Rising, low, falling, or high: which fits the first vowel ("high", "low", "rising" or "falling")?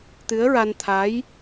rising